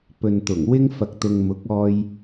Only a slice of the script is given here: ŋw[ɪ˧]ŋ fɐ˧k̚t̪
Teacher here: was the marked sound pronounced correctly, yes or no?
no